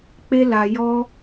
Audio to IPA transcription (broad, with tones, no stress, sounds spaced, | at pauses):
k͡p e˦ l a˧ j ɔ˦